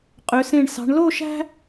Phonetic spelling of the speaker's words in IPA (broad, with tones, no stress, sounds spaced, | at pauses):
qʼ ø˩˧ s ẽ˧˩ ɳ s ɑ̤˩˧ ɳ l o˥˧ ʃ æ̤˥